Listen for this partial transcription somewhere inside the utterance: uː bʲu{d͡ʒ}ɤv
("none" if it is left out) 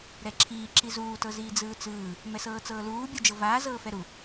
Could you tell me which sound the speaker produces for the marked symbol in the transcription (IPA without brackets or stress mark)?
d͡ʒ